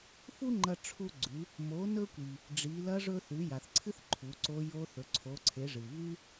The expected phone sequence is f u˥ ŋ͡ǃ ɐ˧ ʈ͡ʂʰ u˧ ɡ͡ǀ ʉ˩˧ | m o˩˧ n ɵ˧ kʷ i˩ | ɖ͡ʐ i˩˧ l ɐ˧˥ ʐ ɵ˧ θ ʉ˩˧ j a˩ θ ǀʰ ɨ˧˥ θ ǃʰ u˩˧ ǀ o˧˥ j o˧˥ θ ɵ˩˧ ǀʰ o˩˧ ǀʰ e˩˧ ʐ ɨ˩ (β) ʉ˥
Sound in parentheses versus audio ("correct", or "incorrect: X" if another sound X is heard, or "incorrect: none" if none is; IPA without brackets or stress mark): correct